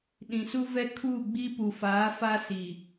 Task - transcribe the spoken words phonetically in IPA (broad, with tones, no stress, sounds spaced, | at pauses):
ɗ ĩ˨ s u˦ v ɛ˦ kʰ uː˦˨ ɡ͡b i˦ p u˨ f aː˨˦ f a˦ s i˨